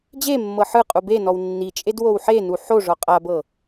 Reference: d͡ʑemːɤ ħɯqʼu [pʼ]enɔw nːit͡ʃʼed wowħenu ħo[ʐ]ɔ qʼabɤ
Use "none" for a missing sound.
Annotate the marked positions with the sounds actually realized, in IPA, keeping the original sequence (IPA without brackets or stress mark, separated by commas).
b, ʐ